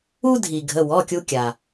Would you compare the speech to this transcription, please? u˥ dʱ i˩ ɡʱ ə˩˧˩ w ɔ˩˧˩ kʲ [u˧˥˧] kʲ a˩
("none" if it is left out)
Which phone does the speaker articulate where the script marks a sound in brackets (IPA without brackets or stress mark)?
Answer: u˧